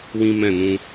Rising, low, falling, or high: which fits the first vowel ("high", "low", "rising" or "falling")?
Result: high